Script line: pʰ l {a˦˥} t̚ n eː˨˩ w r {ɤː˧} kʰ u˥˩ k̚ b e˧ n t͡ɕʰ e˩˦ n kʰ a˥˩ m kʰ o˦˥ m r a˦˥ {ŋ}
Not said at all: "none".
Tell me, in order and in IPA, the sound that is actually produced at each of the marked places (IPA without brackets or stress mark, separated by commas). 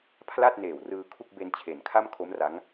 a˥˩, ɯː˧, ŋ